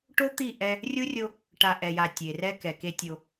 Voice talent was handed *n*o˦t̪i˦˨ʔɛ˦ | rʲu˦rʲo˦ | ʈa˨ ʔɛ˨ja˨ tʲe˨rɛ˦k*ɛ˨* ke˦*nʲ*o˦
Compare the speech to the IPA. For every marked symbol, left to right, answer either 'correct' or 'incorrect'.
incorrect: ʈ, correct, incorrect: tʲ

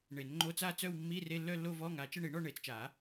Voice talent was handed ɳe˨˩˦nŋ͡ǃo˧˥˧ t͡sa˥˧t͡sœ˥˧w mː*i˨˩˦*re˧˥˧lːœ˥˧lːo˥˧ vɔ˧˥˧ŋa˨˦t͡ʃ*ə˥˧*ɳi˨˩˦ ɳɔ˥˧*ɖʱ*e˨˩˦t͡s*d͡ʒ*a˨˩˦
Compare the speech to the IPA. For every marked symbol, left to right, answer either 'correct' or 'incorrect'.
incorrect: i˧˥˧, correct, incorrect: ɳ, incorrect: t͡ʃ

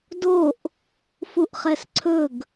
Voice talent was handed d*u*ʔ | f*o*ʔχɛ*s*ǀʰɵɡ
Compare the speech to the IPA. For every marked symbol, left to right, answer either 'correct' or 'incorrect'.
incorrect: o, incorrect: u, correct

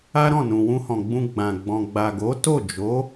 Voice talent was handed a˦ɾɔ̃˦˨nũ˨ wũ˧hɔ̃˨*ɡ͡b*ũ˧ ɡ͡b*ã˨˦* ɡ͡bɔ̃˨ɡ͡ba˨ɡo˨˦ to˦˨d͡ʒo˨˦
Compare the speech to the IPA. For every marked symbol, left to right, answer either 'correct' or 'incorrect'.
correct, incorrect: ã˨

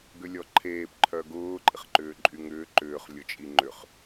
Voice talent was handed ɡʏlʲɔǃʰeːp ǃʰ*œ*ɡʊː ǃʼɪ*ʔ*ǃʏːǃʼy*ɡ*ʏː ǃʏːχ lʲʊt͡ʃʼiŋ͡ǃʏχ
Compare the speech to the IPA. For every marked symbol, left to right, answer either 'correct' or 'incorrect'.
correct, incorrect: χ, incorrect: ŋ

